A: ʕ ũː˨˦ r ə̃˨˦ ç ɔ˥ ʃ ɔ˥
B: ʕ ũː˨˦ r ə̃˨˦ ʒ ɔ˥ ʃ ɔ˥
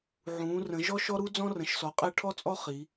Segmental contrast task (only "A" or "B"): B